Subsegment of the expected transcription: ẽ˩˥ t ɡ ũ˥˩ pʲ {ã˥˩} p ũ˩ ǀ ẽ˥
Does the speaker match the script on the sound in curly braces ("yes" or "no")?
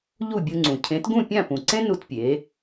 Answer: yes